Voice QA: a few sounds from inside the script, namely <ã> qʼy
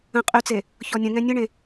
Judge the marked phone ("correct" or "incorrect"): incorrect